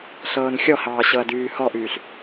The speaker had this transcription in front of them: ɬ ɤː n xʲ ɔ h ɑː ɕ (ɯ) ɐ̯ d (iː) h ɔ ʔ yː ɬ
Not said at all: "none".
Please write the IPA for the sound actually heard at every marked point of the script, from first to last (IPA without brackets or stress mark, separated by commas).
ɤ, yː